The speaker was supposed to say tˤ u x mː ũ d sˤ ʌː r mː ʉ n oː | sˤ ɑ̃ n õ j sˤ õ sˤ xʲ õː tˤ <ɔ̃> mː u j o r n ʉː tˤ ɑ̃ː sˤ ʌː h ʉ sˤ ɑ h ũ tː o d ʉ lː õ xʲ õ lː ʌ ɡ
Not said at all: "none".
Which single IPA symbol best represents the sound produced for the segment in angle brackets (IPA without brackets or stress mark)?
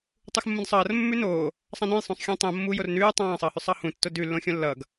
õ